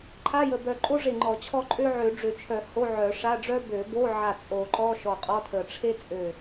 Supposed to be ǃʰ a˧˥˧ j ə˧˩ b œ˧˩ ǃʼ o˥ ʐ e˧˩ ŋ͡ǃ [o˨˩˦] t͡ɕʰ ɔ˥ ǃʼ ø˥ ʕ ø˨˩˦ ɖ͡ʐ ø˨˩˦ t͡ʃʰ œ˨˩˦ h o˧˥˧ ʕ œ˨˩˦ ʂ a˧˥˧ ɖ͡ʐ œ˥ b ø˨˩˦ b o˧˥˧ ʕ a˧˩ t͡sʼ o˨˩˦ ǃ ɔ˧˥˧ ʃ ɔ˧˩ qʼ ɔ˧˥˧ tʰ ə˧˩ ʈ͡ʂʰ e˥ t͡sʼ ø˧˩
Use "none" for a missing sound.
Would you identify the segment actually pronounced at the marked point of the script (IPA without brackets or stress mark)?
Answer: ɔ˨˩˦